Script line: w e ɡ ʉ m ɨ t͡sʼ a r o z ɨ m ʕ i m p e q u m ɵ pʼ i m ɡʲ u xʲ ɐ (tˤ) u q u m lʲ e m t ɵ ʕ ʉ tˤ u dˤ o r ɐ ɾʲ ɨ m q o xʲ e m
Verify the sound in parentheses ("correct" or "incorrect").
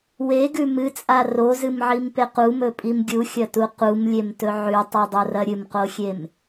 incorrect